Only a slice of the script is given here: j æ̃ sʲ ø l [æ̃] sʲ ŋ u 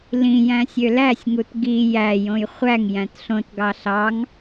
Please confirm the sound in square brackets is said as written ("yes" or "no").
no